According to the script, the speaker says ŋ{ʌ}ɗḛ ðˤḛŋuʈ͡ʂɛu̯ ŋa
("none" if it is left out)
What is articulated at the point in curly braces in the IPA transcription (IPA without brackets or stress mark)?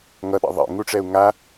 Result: ʌ